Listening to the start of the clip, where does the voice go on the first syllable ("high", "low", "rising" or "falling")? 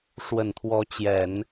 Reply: low